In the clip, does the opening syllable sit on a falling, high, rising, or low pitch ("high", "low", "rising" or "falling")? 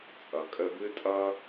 low